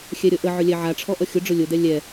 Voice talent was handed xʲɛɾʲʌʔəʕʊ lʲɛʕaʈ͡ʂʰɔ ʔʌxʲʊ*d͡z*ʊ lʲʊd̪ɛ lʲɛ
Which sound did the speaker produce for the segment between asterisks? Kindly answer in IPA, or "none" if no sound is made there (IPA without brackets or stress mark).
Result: ɖ͡ʐ